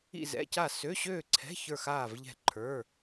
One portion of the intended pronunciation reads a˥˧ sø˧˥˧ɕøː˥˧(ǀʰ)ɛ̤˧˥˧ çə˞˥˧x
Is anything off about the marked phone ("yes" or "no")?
no